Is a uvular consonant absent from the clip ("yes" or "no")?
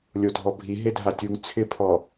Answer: yes